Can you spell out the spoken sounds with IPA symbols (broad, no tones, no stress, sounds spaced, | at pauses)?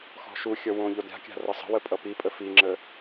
x ɔ̤ ʃ u xʲ ʌ w õ ʎ o d ɾʲ a̤ kʲ a̤ r ʌ sˤ ə̤ w ə pʼ ʌ p i pʼ ə f i ŋ͡ǁ ə